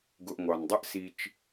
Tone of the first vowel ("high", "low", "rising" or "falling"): low